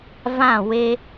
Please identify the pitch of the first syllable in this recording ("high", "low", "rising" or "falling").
falling